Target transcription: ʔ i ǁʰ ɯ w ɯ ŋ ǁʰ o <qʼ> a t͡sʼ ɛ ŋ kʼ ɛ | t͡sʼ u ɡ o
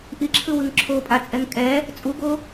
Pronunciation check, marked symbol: incorrect: pʼ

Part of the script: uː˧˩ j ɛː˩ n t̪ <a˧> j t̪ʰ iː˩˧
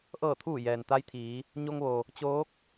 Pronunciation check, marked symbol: incorrect: a˧˥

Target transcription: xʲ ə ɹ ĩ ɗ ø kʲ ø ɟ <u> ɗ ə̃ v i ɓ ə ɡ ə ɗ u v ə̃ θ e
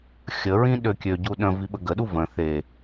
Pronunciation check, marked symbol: correct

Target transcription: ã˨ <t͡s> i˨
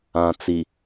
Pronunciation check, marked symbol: correct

